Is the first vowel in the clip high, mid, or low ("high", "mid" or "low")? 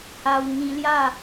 low